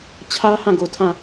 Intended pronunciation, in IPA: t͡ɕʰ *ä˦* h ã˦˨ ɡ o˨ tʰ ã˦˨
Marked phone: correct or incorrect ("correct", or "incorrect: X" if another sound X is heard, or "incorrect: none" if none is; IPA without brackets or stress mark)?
correct